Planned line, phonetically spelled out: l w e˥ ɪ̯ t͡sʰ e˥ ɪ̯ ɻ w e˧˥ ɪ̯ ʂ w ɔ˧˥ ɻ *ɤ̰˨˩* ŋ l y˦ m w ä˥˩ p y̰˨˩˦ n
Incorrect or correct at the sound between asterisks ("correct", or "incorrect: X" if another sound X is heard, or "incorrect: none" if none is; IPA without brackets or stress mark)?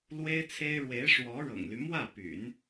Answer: correct